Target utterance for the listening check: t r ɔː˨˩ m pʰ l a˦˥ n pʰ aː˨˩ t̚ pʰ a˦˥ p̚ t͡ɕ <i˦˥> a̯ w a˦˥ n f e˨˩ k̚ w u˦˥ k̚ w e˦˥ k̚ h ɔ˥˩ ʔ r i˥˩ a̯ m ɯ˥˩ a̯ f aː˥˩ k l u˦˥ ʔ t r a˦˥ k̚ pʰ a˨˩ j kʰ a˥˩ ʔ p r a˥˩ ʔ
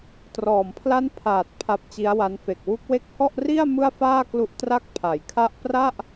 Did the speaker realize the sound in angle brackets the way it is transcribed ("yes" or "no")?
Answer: yes